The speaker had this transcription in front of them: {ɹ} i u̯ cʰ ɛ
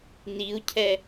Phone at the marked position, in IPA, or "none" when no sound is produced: n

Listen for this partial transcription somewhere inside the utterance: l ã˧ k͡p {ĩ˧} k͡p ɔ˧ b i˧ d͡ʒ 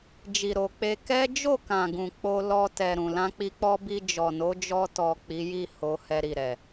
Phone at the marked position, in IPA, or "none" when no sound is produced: i˧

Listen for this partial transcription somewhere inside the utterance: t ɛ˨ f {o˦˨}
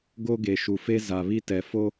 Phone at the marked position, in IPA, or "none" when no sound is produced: o˦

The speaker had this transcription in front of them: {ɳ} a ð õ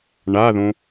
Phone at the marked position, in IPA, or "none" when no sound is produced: ɳ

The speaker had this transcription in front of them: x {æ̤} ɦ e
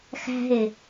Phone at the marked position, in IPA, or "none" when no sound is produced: æ̤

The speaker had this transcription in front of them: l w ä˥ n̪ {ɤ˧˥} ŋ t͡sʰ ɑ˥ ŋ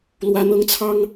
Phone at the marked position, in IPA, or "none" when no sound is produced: ɤ˥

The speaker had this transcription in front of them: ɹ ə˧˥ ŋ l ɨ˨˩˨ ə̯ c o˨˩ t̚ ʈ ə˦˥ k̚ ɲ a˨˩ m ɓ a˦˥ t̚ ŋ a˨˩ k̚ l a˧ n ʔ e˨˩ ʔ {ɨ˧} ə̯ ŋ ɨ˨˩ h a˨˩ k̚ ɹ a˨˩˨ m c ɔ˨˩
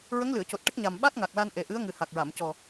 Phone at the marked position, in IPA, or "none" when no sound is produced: ɨ˧˥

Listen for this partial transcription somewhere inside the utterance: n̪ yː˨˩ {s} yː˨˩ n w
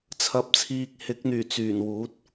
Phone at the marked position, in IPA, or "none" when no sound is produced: t͡s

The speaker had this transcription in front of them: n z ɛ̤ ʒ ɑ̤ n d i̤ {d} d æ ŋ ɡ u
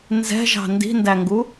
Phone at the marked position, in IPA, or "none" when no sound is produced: n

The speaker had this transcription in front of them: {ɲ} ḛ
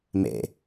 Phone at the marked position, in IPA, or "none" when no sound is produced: m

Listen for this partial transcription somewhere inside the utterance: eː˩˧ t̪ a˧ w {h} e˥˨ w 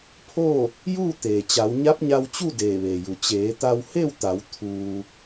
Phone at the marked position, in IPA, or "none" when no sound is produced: h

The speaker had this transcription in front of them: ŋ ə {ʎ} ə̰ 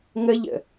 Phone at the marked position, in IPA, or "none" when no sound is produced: ʎ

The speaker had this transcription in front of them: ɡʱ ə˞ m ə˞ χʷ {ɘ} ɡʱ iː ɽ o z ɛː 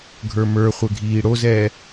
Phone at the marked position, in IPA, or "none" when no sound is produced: ɘ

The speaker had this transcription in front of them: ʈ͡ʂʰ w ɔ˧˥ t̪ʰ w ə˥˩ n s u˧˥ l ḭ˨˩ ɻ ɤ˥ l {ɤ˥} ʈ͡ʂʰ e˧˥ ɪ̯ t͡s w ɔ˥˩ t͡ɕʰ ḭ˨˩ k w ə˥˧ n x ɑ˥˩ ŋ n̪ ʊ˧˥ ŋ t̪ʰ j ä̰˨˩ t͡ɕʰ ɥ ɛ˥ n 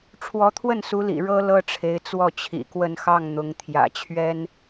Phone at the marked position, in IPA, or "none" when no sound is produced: ɤ˥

